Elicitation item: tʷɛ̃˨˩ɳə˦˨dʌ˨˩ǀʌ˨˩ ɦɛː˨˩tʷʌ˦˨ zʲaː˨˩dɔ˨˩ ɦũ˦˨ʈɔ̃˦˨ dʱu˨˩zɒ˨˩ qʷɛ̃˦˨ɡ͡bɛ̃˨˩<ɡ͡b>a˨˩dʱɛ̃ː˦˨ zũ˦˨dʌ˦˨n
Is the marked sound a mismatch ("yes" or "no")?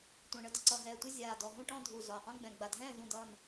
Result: no